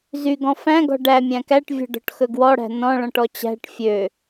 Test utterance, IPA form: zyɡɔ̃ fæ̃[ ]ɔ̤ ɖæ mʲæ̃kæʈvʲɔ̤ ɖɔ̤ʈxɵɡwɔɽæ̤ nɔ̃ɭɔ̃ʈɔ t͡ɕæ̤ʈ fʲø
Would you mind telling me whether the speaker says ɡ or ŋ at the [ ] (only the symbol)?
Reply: ɡ